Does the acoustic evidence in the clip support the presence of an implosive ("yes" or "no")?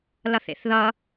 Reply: no